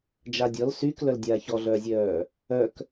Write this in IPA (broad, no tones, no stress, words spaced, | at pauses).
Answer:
d͡ʒadʲɔl syːklœldʲaː çɔɮœːzʲœː | œk